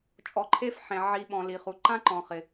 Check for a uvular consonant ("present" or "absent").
present